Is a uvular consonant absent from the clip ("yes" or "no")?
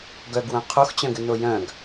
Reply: no